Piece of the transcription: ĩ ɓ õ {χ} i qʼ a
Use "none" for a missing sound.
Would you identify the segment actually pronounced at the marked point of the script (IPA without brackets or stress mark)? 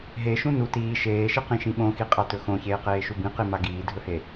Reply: x